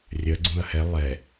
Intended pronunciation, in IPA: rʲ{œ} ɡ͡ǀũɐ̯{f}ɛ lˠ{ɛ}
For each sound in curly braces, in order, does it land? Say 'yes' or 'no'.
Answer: yes, no, yes

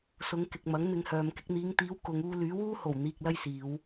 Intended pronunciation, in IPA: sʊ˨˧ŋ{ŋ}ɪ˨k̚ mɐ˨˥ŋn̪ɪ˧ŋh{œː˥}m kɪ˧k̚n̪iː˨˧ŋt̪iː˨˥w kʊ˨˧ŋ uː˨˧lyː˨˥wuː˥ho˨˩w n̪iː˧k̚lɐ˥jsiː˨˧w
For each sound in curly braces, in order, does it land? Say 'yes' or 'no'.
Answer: no, no

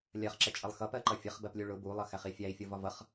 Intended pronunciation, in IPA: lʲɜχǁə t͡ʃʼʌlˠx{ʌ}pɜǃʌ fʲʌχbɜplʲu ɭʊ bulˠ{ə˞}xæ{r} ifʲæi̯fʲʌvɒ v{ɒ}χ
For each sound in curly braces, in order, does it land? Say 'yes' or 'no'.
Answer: yes, no, no, no

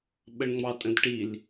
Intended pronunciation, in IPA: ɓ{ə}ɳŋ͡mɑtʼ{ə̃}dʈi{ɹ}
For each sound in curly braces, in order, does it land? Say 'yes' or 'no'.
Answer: yes, yes, no

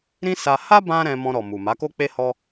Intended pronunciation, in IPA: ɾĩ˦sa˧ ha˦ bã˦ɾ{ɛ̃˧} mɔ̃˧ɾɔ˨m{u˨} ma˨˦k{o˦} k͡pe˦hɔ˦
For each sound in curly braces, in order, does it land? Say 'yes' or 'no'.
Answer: yes, yes, yes

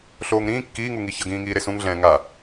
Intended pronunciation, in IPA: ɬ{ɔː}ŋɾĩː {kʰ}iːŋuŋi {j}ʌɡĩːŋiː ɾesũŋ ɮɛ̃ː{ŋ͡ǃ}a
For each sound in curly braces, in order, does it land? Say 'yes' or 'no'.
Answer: no, no, no, no

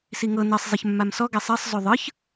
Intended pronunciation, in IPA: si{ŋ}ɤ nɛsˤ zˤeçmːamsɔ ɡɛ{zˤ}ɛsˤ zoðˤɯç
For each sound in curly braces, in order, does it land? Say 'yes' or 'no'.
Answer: yes, no

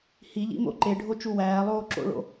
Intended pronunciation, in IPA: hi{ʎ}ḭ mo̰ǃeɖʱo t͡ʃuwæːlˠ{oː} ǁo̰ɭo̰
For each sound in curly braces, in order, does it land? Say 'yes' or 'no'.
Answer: yes, yes

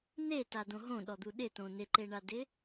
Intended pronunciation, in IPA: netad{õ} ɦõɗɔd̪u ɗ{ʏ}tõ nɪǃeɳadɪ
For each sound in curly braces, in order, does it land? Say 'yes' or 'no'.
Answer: yes, no

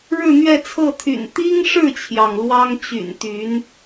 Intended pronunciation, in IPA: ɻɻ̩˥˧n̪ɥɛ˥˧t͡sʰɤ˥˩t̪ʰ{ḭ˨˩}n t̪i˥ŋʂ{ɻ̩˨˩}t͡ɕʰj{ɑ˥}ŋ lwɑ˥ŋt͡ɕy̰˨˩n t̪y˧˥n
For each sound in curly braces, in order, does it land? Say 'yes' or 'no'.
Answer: no, no, no

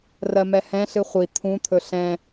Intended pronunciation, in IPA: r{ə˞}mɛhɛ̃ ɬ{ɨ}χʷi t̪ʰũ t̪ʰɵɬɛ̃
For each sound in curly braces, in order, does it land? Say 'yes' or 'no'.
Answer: no, yes

